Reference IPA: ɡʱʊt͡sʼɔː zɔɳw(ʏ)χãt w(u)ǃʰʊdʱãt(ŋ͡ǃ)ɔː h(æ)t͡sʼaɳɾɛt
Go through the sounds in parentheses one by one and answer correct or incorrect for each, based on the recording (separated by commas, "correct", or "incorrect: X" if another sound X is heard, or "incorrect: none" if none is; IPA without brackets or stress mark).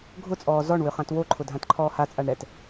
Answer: correct, incorrect: o, incorrect: ǃʰ, incorrect: a